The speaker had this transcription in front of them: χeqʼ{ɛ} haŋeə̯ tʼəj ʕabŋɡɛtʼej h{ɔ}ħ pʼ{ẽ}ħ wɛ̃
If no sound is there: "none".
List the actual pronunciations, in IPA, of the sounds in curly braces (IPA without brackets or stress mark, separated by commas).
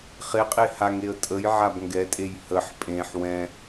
e, ə, ẽ